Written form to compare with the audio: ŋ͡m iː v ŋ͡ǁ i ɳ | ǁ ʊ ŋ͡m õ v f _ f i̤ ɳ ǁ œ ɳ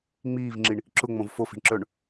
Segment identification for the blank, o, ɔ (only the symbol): o